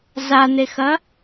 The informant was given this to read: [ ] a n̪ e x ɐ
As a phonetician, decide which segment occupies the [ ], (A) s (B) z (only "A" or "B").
B